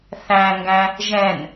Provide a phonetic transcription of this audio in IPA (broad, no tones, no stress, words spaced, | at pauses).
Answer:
θæ̃ŋɡæ̃ | ʒɛ̃n